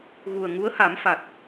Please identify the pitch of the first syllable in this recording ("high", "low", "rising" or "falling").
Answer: low